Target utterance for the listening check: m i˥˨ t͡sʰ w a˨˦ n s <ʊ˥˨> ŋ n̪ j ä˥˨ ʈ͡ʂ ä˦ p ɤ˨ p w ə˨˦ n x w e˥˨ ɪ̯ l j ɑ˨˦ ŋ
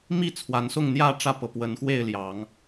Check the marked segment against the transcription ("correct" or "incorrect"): correct